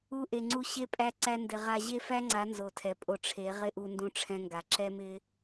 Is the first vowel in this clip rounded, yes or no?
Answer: yes